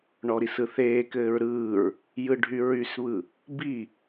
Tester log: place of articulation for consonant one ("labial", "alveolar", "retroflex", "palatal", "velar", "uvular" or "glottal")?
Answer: retroflex